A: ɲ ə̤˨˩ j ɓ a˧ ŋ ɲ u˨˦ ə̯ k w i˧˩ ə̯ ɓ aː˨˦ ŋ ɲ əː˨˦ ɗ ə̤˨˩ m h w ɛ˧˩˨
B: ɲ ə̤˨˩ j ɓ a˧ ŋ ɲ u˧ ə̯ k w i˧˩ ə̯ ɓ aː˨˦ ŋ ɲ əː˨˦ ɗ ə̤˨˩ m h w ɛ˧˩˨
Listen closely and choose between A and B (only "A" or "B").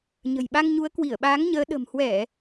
A